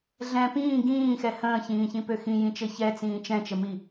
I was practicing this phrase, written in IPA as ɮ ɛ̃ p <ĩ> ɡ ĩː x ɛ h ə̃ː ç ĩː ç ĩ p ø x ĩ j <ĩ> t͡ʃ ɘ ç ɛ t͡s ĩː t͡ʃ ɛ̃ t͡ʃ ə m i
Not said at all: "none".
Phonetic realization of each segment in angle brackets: ĩː, ĩ

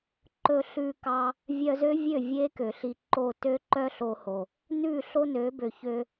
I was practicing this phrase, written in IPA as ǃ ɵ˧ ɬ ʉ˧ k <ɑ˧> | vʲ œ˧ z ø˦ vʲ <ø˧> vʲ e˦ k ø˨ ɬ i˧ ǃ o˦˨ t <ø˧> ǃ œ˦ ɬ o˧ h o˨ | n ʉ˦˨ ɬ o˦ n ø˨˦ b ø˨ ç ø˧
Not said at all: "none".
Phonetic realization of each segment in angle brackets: ɑ˧, ø˦˨, ø˦

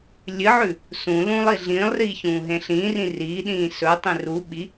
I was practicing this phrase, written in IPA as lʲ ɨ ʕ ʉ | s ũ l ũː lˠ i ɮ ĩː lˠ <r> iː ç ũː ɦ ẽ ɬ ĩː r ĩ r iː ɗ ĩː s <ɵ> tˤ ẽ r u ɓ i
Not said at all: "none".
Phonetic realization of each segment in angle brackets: r, ɵ

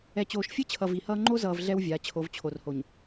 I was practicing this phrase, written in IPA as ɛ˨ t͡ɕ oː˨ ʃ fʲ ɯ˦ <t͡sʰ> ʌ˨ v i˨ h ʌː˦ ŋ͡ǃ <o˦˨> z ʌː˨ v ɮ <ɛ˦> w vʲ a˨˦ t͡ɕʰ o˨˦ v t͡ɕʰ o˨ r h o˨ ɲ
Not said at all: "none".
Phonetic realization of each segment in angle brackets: t͡ɕʰ, o˦, ɛ˦

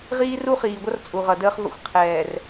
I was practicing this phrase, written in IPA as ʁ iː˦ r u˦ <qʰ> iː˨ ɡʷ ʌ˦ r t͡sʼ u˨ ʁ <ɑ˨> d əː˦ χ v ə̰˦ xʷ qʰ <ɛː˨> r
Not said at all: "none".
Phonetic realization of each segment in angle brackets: χ, ʌ˨, ɛː˨

